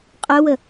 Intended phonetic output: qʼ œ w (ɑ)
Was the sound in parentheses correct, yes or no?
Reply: no